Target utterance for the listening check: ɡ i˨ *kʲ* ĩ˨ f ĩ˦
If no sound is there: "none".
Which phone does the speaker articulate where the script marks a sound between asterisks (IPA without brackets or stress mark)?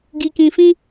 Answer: k